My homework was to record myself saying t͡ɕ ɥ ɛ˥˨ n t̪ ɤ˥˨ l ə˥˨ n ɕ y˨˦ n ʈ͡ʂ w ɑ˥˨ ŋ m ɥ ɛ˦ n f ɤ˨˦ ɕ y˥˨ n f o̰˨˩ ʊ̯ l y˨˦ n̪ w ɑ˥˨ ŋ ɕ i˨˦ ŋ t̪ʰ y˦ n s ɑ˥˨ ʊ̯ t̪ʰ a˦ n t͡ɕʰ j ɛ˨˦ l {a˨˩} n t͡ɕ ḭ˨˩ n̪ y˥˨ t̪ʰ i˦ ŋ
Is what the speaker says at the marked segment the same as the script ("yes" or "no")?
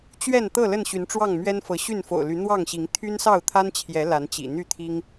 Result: no